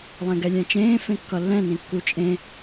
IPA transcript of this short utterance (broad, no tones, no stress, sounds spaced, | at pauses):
lˠ ɛ̃ ɡ ɛ lʲ ɛ̃ t͡ʃ ẽː f ẽ kː ʌ lː ɛ̃ n ĩ kː u t͡ʃʼ ẽ